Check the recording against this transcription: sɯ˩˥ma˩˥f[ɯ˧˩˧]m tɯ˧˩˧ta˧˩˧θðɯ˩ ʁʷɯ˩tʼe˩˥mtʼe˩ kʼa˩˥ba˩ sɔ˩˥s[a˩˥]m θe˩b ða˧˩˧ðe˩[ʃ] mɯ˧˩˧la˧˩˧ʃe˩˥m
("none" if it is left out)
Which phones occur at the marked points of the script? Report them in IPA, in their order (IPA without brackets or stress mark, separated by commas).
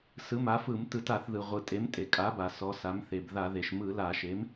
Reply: ɯ˧˩˧, a˩˥, ʃ